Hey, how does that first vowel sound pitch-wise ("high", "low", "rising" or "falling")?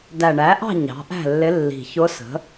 low